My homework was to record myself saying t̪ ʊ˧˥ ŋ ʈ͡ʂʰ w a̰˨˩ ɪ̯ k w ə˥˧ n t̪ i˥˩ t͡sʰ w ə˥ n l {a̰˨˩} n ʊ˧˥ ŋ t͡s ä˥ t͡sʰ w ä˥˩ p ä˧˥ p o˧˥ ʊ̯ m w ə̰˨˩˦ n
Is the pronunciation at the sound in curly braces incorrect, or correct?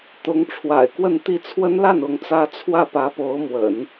incorrect